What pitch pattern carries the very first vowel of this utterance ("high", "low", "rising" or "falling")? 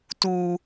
high